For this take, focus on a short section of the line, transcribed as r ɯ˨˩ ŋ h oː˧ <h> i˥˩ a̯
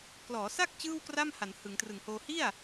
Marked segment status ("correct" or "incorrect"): correct